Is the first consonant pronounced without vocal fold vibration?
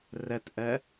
no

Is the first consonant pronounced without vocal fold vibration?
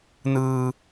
no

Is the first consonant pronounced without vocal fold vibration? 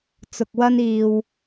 yes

